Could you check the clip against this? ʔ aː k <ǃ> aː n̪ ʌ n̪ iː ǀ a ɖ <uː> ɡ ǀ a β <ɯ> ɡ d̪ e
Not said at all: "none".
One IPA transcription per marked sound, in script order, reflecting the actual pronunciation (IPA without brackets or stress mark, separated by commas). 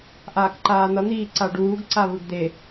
ǃ, uː, ɯ